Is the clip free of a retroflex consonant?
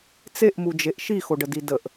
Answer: no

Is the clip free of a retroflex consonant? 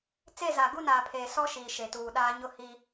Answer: yes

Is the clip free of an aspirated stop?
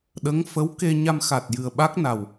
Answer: yes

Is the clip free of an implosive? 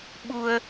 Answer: no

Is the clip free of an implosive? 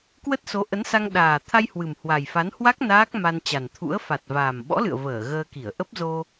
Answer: no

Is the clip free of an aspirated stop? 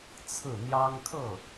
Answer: no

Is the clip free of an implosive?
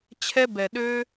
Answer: no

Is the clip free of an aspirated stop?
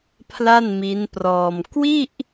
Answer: no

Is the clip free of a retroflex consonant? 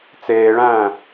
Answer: no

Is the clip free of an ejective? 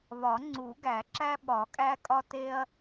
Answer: no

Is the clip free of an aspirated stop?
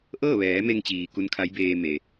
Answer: no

